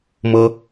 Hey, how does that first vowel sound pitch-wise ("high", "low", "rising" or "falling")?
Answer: high